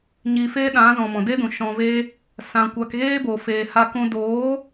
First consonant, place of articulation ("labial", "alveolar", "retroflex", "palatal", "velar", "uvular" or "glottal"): palatal